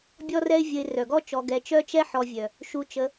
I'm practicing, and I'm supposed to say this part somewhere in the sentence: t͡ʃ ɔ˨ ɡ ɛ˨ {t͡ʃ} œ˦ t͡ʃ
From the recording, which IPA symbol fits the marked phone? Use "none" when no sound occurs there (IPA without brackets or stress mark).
t͡ʃ